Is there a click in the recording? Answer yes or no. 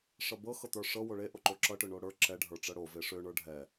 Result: yes